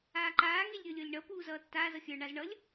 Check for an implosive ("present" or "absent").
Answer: absent